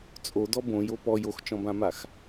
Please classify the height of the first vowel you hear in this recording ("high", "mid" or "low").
mid